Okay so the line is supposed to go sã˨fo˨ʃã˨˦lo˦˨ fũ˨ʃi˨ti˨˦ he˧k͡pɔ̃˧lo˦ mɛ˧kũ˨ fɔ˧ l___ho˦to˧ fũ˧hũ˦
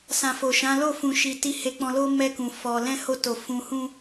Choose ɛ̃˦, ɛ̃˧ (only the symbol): ɛ̃˦